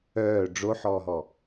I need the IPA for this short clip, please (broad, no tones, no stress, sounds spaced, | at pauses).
œː ɖ͡ʐ o ħ ɔː ɦ ɔ